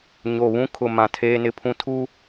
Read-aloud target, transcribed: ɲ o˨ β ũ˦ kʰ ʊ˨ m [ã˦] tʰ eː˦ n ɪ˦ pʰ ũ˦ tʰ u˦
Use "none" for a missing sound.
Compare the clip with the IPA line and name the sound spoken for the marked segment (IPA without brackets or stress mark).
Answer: ã˨